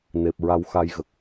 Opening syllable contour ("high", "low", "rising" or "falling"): low